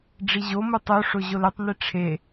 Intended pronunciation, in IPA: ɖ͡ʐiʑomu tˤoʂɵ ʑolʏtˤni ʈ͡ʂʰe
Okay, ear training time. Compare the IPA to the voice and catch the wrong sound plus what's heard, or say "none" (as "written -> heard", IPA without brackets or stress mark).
ɵ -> o